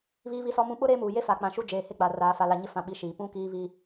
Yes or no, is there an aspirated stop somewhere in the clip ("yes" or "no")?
no